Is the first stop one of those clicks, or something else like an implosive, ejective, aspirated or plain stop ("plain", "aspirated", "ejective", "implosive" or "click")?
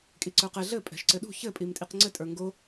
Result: ejective